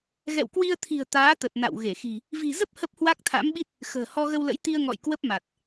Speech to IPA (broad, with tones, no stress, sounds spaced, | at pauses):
ɣ ɛ̰˧˨ w k w i˧ ə̯ t̪ʰ i̤˨˩ ə̯ t̪ aː˨˦ t̪ ə˨˩ t̚ n a̰˧˨ w ɣ e˧˩ x i̤˨˩ | v i̤˨˩ z ə˦˥ p̚ h ə˦˥ p̚ h w a˦˥ k̚ t̪ʰ a̰˧˥ m ɓ i˦˥ t̚ | x ə̤ː˨˩ h ɔ˧ ɣ ə˧ w l ə̰˧˥ j t̪ i˧ ə̯ ŋ ɔ̰˧˨ j k w ə˦˥ p̚ m a˨˩ t̚